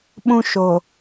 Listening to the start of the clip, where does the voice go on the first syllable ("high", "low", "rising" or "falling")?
high